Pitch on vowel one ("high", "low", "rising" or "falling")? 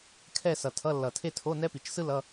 falling